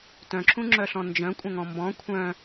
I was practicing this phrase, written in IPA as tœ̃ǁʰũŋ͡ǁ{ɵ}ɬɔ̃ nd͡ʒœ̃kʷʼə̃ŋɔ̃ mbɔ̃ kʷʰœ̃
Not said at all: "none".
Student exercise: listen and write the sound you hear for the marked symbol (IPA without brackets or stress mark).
œ